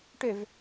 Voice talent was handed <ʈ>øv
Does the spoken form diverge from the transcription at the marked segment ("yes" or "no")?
no